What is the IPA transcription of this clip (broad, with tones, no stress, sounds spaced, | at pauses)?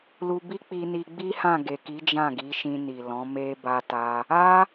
l u˧ b i˦ k͡p i˧ n i˧ ɡ͡b i˦ h ã˦˨ ɡ e˨ k i˨˦ d͡ʒ ã˦˨ ɡ i˨˦ ʃ ĩ˧ n i˨ l ɔ̃˨˦ m e˦ b a˦ t a˦ | a˦